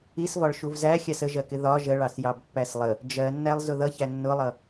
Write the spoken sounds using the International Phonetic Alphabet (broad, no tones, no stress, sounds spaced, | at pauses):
i s v ɒ ɭ ʃ u v z æ xʲ ɑ s ə ʒ ɜ k ɪ ð ɒ ʒ ə ɭ ɑ s j ɑ b pː æ s lˠ ə | d͡ʒ ɜ nː æ lˠ z ʊ ð ʌ ç æ nː ʊ lˠ ʌ